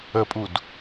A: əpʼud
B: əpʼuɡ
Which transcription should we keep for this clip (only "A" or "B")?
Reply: A